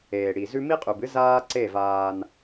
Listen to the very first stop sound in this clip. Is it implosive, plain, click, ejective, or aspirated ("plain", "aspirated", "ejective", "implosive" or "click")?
ejective